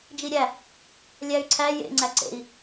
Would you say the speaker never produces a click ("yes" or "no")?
no